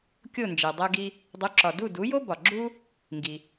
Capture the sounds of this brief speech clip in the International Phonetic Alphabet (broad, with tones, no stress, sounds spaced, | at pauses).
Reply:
kʲ o˥˩ n d͡ʒ e˩ dˤ æ˧ ɡ i˧ | dˤ u˩˥ ǁ ɒ˩ d u˥˩ d u˩˥ j o˥ b ɒ˩ ɡ͡ǁ u˥ | ŋ ɡ i˩